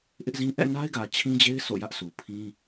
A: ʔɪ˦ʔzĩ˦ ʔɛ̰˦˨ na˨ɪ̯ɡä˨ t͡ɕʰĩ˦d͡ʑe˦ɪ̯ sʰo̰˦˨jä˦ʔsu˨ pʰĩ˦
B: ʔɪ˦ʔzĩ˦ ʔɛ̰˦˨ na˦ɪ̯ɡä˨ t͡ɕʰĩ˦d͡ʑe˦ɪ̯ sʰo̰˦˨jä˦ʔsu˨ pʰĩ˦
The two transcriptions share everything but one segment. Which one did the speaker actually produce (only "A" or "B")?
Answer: B